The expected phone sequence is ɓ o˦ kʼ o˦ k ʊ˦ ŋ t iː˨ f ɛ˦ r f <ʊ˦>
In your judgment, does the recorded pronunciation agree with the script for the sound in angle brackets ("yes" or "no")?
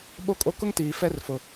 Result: no